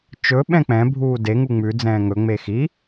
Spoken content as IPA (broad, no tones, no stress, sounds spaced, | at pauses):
t͡ʃ ɵ ɓ ɛ̃ k͡p ɛ̃ bʱ uː d e ŋ u ŋ͡m ʉ d͡z ɛ̃ː ŋ ɵ ŋ͡m e x i